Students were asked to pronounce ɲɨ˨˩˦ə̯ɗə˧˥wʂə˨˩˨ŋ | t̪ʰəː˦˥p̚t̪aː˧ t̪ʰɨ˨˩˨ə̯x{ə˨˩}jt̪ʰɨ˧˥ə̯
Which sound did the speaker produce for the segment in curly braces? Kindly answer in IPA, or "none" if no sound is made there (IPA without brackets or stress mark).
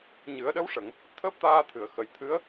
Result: ə˨˩